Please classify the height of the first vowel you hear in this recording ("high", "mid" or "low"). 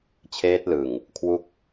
mid